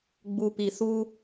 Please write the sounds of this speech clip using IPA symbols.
ɡ͡b u˨ p i˨ s u˧

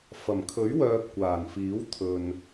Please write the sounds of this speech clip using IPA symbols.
f ɐ˨˩ m kʰ ɵ˨˥ ɥ w œː˧ p̚ kʷ aː˨˩ n f iː˨˥ w t̪ʰ ɵ˨ n

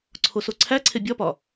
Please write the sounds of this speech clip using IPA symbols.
ǀʰ o s o ǀʰ æ ǀʰ e bʲ ɒ p ɒ

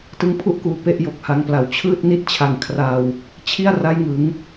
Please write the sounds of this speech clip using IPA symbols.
t ɯ˧ ŋ pʰ u˥˩ ʔ k uː˨˩ p e˦˥ ʔ j o˨˩ k̚ h a˧ ŋ p l a˨˩ w t͡ɕʰ ɯː˥˩ t̚ n i˥˩ t̚ t͡ɕʰ a˧ ŋ kʰ r a˧ w | t͡ɕʰ i˥˩ a̯ r a˦˥ j ŋ ɯ˩˦ ŋ

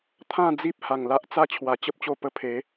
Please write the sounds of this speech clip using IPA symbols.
t̪ʰ ã˥˧ d͡z i˦ p̚ h a˨˩ ŋ l a˦ ʔ t͡s a˥˧ t͡ɕʰ w a˨˩ t͡ɕ ə˦ p̚ t͡ɕ o˧ p ə˧ pʰ e˨˦

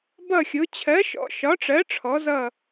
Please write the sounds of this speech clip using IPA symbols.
b ʌ˥˧ xʲ ʊ˨˥ t͡ɕʰ ɜ˨˥ ʃ ɔ̰˨˥ ʃ ɒ˨˥ ʈ͡ʂ ɜ˨˥ ʈ͡ʂʰ ɔ˨˥ z ʌ˥˧

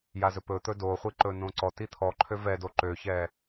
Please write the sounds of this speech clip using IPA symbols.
j a z ɵ p ɵ t̪ ɵ d o χʷ i ǃ ɵ n õ ǀ ɔ t i t̪ʰ ɔ ǃʰ ø v ɛ d o ǃ ø ç ɛ

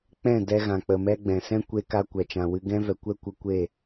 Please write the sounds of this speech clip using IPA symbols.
k͡p ɛ̃˦˨ d ɛ˧ ɣ ã˨ k͡p ə˨ m ɛ˦ ɡ͡b ɛ̃˨ s ɛ̃˦ kʷ e˦ k a˦ kʷ ɛ˨ t͡ʃ ã˨ w ɨ˦ ɡ ɛ̃˦ v ɛ˨ kʷ ɛ˦ kʷ ə˧ kʷ e˦˨

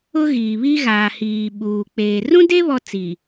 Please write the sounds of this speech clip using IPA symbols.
ʊ˦ ɣ iː˨ β i˦ ɣ aː˨ h iː˨ ɓ uː˨ k͡p eː˨ r ũ˦ d e˦ β ɔ˦ t͡s i˨

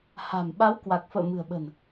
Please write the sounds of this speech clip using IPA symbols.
h a̤˨˩ m ɓ a˨˦ w k w a˨˩ k̚ f ə̰ː˧˨ m ɨ̤˨˩ ə̯ ɓ ə̤˨˩ n

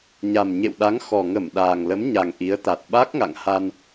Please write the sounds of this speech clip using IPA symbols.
ɲ a˨˩ m ɲ ḛ˧˨ w ɗ a˨˦ ŋ x ɔ˨˩ ŋ ə˧˩ m ɗ aː˨˩ ŋ l ə˨˦ m ɲ a˨˩ ŋ ʔ i˨˦ ə̯ t̪ a˨˩ t̚ ɓ a˦˥ k̚ ŋ a̰˧˨ ŋ h a˧ n

